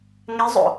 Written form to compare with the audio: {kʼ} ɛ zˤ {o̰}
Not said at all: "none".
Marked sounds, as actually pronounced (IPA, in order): ŋ, o̰

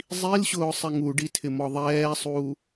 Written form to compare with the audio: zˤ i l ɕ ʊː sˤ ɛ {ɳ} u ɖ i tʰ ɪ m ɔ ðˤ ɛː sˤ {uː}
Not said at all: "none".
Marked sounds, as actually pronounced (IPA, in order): ŋ, uː

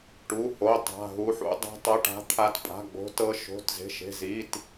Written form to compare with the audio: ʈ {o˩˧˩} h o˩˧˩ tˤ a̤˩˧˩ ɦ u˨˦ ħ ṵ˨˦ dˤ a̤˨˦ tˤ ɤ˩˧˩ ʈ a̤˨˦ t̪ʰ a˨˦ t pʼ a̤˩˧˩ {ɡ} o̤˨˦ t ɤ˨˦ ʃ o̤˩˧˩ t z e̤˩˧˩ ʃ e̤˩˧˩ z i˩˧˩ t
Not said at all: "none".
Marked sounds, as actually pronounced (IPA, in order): u˩˧˩, ɡ͡b

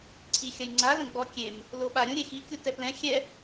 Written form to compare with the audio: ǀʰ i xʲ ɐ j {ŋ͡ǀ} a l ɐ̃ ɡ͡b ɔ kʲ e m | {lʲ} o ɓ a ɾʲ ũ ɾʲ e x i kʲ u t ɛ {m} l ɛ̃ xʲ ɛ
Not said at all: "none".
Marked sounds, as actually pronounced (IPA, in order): ŋ͡ǀ, l, p

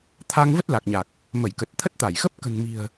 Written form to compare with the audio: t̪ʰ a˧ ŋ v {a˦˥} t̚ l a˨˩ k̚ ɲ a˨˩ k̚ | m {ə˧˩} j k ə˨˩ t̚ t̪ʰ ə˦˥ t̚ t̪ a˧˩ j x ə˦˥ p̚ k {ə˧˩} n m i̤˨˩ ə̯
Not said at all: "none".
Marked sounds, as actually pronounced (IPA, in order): ə˦˥, ə˧˩, ə̤˨˩

